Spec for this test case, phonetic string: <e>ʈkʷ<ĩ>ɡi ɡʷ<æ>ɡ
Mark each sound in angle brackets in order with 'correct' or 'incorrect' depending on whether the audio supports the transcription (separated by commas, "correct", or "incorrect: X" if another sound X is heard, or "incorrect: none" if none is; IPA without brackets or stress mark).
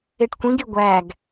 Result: correct, correct, correct